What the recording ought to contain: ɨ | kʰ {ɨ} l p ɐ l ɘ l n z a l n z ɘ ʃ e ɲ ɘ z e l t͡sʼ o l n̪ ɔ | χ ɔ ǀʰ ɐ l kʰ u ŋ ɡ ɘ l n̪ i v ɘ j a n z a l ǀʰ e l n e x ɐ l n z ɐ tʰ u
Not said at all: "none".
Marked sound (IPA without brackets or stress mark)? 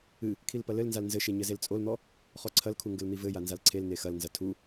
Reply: i